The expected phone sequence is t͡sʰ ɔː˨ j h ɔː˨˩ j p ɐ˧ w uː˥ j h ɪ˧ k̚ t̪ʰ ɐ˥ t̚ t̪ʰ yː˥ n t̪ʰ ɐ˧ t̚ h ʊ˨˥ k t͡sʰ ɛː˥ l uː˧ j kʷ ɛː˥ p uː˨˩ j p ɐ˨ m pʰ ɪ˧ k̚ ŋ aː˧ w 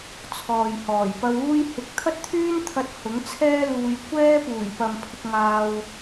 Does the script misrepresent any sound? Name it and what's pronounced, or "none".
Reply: k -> ŋ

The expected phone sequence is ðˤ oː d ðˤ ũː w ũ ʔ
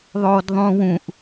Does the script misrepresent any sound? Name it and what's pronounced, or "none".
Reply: none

